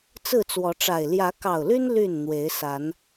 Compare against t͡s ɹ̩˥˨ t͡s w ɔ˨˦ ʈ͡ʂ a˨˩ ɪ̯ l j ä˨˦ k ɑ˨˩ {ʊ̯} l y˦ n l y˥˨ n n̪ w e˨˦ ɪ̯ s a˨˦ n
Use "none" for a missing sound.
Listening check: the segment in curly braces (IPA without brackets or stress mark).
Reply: ʊ̯